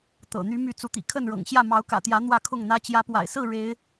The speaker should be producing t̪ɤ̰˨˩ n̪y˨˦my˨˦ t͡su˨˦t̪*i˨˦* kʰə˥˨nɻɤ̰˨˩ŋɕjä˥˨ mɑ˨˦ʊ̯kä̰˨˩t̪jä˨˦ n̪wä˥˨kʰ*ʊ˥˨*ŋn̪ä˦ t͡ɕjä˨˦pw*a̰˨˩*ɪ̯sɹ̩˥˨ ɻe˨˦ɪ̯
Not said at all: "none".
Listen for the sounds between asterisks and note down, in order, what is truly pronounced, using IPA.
ḭ˨˩, ʊ˥˨, a̰˨˩

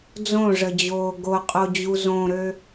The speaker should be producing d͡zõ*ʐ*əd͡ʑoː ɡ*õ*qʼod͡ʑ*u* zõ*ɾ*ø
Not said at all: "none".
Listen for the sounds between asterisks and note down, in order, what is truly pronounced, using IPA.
ʐ, o, u, ɾ

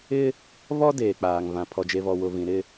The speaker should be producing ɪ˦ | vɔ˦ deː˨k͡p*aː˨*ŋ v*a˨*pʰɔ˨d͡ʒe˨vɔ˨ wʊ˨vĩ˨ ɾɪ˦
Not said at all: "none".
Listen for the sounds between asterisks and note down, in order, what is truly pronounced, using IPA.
aː˨, ã˨

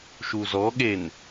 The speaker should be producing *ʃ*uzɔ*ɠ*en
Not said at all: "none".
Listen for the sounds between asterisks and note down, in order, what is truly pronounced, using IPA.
ʃ, ɠ

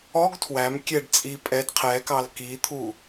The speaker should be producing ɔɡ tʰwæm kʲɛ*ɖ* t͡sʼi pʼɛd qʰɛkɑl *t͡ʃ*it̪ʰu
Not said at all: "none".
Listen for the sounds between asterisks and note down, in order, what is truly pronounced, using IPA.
ɖ, k

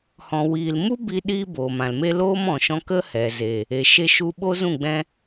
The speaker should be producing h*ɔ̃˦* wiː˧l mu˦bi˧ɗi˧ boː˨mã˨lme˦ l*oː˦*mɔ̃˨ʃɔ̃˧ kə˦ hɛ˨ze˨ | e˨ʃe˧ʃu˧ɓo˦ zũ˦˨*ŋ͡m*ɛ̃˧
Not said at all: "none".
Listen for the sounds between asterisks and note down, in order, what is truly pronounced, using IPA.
ɔ̃˧, oː˦, ɡ͡b

